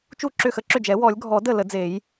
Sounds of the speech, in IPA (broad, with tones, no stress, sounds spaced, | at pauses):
t͡ʃ u˥˩ ǁ ʏ˥˩ x ə˥˩ ǁ ʏ˥˩ d͡ʒ ɛ˨˩˦ w ɔ˨˩˦ lʲ ɡʱ ɔ˨˩˦ d ə˥˩ l ə˨˩˦ d͡z e˨˩˦ j